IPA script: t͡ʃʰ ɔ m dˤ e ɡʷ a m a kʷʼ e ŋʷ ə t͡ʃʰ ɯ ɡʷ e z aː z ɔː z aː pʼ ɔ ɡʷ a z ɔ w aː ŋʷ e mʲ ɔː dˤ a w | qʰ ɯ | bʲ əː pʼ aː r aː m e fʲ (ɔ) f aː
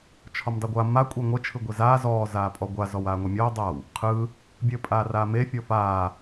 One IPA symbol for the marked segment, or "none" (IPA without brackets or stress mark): ɔ